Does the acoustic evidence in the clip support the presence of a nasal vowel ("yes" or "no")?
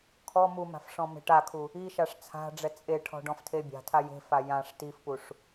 yes